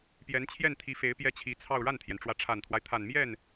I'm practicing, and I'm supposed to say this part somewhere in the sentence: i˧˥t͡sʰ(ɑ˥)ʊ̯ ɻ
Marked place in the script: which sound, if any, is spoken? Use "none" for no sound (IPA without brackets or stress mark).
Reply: ɑ˥˧